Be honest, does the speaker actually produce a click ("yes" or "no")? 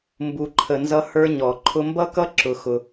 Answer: yes